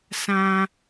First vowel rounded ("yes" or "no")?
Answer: no